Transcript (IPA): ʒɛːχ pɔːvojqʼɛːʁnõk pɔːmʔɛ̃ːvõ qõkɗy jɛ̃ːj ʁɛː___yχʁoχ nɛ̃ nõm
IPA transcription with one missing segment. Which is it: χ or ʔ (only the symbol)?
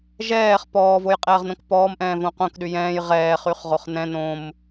χ